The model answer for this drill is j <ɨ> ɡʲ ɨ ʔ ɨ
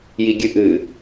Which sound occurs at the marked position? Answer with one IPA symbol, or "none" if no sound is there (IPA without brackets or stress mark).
i